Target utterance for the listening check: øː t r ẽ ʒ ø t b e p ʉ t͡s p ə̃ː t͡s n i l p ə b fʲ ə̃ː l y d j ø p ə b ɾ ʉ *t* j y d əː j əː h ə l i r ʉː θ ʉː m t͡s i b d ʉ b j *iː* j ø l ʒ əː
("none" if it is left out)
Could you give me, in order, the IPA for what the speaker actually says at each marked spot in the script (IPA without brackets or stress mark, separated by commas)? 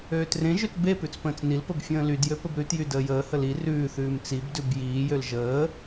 t, iː